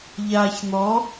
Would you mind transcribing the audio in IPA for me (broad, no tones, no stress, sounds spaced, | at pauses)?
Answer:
ʎ aː ç n̪ ɔ